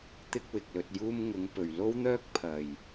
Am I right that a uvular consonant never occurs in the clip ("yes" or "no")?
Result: yes